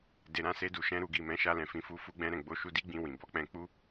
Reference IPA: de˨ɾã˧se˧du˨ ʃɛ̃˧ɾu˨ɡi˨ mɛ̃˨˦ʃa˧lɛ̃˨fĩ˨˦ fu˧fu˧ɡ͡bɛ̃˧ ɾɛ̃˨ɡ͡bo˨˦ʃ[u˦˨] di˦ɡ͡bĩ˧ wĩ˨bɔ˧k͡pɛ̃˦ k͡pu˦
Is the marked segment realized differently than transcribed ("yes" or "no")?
yes